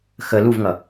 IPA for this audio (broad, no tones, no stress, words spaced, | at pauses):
xə luvŋʌ